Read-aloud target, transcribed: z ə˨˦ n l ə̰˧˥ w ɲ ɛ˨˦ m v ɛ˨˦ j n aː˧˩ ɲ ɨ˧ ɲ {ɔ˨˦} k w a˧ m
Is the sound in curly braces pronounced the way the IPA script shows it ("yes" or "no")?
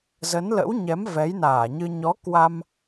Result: yes